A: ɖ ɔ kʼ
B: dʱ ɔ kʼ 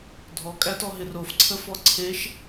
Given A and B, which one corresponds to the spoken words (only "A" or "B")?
B